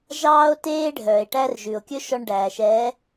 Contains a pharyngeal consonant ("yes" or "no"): no